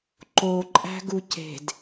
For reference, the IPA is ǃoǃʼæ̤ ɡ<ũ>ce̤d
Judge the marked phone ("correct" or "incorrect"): incorrect